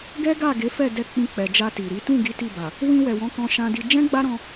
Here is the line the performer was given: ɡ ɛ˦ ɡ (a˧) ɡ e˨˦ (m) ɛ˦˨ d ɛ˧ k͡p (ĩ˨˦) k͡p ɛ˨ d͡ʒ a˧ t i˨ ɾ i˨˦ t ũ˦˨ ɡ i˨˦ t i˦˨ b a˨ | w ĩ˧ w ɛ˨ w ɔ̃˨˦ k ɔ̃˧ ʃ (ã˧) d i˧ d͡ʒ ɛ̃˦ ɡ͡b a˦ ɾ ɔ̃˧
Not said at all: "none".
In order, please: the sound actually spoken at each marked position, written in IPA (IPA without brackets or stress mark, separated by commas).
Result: a˦˨, f, ĩ˧, ã˧